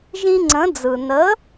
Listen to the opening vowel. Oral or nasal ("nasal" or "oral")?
nasal